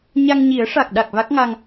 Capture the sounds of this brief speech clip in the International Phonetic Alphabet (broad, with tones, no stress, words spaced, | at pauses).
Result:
ɲa˧ŋɲi˨˩˦ə̯ʂa˨˩k̚ɗa˨˩k̚ va˦˥k̚ŋa˧ŋ